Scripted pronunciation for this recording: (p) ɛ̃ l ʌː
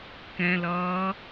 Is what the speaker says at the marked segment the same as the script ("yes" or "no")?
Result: no